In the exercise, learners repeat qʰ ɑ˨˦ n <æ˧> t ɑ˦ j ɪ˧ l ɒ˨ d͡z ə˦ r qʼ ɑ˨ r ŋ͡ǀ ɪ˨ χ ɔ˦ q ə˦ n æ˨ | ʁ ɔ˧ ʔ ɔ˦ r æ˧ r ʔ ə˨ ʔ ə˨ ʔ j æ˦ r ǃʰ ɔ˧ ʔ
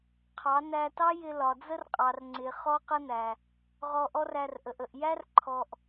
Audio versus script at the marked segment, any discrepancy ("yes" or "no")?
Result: no